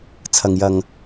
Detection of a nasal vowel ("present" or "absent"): absent